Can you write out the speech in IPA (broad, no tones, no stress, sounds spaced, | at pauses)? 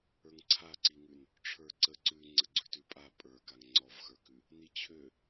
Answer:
ə˞ ŋ ǀʰ a ǀ i ŋ ʉ n | ʈ͡ʂʰ ə˞ ǀ ə ǀ ʉ ŋ͡ǀ ə ɡ͡ǀ ʉ t ʉ pʼ a pʼ ə˞ k a ŋ ŋ͡ǀ ɔ v x ə˞ k ʉ | n i t͡ɕʰ ø